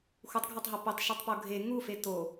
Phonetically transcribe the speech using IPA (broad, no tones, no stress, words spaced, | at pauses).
xutˤɡʱætˤɦo petˤʃutˤpo ɡʱe ŋufe to